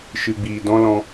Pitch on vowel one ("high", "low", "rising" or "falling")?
low